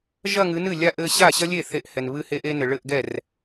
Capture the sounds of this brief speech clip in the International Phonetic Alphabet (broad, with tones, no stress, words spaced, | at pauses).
ʒɐ˥˧ŋɨ˨˦nɨ˥˩ lʲa˥˧ʔɘ˥˧ ɕa˥˩ɕɐ˥lʲe˥˩ θe˥˧ʔhɛ˨n βɨ˥˧he˥ʔe˥nɘ˨ ɭɘ˥˧ʔɡɛ˥˩r